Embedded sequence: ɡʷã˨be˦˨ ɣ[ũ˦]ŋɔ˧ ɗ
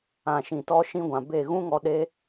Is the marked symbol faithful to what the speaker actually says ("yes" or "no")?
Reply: yes